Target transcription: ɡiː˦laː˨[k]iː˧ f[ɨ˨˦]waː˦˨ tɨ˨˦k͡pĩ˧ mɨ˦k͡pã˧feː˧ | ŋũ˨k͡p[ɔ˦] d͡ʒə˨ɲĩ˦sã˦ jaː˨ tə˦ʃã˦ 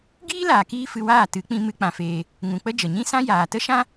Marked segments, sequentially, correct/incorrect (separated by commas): correct, incorrect, incorrect